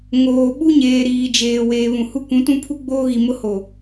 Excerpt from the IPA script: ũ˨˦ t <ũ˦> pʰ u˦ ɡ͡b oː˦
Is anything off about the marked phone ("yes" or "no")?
no